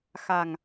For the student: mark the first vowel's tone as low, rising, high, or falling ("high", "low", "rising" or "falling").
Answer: low